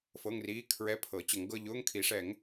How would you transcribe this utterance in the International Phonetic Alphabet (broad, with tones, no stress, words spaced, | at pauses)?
fɤ˧˥˧ŋriː˧˥˧ kʰɹɛ˧˥˧pʰɤ˨˩˦ t͡ɕə˨˩˦ŋɡɤ˧˥˧ ʎʊː˧˥˧ŋkʰi˨˩˦ʂɛ˨˩˦ŋ